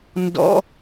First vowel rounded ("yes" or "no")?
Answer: yes